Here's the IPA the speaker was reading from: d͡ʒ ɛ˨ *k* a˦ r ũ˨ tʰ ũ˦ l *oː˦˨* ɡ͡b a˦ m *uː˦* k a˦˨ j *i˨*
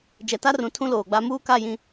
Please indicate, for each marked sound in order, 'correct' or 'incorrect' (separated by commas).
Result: incorrect, incorrect, correct, incorrect